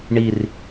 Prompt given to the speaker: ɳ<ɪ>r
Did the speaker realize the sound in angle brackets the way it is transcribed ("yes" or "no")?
no